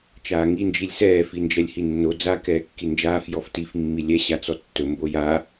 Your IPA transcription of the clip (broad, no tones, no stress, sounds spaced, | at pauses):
t͡ʃ aː ŋ i n d͡ʒ i lʲ s ɛː f i n d͡ʒ ɛ lʲ h i nː o d͡z a k ɛː kː i n d͡ʒ aː f j ɔ f t i f mː i lʲ ɛ ɕ a t͡s ɔ tː ɵ m b o j a